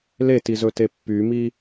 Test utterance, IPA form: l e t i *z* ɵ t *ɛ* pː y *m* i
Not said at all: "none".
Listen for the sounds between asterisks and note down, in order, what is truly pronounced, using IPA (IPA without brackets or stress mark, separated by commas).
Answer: z, e, m